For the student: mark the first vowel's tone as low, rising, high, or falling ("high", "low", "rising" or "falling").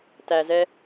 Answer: low